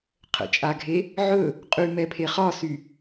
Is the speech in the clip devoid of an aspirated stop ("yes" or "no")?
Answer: no